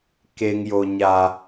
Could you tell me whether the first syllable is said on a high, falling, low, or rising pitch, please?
high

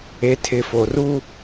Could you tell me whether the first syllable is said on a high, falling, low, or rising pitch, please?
low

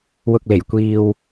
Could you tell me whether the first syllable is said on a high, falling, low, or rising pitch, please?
low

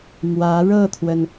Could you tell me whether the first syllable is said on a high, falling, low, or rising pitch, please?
rising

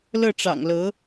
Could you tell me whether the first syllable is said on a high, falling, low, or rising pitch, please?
falling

